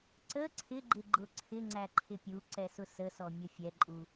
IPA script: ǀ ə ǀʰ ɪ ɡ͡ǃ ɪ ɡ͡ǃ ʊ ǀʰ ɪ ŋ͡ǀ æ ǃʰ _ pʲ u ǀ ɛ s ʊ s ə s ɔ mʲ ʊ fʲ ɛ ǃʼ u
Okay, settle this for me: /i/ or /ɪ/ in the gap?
ɪ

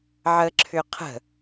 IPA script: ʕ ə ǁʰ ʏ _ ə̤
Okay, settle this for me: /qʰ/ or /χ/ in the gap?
qʰ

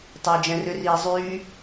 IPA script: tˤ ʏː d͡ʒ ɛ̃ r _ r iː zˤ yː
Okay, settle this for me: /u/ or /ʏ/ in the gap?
ʏ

